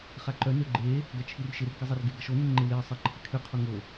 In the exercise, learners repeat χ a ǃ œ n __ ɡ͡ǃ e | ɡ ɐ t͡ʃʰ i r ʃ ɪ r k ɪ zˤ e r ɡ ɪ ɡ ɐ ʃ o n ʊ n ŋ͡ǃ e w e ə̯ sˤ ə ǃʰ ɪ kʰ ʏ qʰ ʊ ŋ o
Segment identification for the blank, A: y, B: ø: B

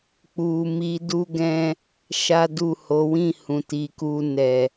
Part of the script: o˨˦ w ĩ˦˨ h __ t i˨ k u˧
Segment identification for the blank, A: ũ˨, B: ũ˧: A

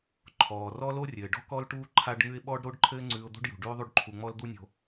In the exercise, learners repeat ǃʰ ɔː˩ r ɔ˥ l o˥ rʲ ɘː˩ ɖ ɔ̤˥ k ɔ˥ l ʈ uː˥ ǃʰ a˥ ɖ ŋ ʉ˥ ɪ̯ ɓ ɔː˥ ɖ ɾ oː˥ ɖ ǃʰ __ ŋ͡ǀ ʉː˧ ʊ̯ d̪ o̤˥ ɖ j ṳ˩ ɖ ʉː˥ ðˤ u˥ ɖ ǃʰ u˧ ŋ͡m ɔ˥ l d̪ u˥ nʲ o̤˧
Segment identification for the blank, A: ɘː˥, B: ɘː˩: A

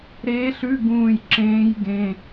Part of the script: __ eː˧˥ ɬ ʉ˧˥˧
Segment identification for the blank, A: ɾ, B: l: A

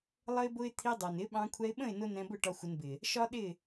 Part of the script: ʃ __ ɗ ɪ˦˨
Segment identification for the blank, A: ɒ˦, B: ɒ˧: A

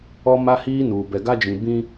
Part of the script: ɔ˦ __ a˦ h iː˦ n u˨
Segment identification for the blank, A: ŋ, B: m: B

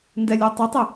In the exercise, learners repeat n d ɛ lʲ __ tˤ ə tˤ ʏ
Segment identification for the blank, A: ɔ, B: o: A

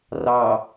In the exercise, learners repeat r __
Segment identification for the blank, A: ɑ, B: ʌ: A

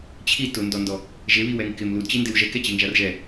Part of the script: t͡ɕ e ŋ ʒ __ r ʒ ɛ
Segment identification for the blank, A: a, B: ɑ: A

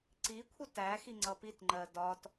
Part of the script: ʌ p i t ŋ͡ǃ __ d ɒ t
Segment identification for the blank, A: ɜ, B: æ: A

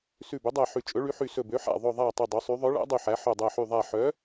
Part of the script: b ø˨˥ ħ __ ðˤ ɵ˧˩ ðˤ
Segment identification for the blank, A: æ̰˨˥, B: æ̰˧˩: B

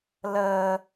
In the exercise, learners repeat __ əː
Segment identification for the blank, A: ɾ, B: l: B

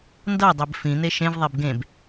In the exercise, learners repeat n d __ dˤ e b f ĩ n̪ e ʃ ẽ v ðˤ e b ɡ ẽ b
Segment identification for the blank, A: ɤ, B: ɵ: A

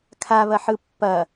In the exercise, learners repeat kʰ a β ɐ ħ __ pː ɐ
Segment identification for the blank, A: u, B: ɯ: B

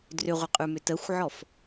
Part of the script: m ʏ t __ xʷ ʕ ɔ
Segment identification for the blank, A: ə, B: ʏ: A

